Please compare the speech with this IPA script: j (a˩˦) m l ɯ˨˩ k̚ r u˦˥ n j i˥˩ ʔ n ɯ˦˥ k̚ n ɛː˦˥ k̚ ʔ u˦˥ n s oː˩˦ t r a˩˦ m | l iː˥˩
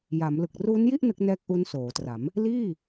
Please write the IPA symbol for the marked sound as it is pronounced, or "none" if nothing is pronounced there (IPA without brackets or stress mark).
a˩˦